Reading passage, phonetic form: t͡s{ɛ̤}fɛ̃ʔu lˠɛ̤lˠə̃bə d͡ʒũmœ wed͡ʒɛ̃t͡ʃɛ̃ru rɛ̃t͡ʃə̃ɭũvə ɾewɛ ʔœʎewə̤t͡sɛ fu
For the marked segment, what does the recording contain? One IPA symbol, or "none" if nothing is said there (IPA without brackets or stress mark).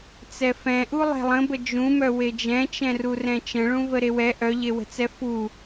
ɛ